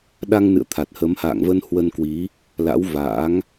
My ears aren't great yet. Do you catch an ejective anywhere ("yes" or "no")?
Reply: no